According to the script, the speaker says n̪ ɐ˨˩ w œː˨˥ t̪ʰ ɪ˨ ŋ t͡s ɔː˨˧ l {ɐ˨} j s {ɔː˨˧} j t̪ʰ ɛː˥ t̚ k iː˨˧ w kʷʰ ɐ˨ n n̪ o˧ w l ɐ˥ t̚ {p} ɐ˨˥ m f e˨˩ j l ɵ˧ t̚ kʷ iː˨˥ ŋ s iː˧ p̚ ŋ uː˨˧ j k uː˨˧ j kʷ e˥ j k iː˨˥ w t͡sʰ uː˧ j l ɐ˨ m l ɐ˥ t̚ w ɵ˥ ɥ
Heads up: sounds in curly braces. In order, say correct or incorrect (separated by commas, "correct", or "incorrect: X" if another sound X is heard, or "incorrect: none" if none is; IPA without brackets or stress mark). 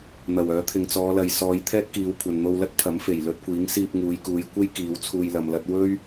correct, correct, incorrect: pʰ